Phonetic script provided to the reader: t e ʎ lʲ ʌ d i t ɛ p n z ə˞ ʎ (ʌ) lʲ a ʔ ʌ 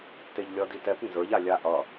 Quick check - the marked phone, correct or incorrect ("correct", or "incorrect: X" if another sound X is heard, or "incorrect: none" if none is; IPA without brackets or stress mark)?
incorrect: a